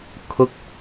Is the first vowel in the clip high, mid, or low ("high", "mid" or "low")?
high